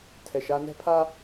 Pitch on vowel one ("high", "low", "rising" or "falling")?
low